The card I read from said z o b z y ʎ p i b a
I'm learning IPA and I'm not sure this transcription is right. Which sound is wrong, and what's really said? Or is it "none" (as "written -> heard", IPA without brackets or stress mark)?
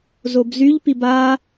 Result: none